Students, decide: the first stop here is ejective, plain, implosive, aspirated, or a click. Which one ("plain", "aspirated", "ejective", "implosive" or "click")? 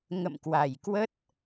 plain